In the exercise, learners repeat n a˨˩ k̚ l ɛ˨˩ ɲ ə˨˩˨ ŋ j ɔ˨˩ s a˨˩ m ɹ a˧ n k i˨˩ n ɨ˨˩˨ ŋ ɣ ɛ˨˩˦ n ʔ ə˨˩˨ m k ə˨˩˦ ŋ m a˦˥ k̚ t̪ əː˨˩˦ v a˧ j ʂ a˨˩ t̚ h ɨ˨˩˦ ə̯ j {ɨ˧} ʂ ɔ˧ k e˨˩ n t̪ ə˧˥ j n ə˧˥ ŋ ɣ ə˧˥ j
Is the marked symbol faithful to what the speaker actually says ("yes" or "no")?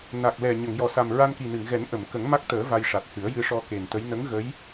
yes